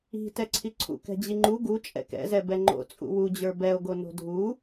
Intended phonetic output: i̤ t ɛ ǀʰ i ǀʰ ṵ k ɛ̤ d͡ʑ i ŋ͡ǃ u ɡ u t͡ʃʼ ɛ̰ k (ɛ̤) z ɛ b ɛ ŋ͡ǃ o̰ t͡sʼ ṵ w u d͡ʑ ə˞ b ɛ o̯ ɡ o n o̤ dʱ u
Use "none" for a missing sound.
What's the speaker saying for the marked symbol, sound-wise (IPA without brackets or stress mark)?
ɛ̰